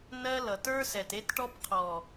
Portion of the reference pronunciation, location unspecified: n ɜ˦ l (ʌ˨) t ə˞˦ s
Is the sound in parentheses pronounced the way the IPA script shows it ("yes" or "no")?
yes